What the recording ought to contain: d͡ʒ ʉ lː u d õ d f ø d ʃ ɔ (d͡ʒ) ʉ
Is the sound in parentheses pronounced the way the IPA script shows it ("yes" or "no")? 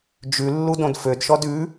no